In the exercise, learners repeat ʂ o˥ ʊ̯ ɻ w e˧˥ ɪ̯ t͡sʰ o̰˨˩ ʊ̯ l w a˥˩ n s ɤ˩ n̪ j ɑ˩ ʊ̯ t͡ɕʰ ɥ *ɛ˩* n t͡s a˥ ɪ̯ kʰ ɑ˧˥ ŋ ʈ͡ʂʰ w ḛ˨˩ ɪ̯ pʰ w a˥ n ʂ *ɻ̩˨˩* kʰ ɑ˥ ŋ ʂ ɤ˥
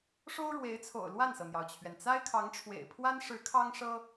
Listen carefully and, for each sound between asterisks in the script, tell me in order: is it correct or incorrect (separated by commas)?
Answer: correct, incorrect